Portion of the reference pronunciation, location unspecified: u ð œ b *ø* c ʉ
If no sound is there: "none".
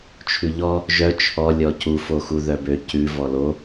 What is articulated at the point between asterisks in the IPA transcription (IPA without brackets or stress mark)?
ø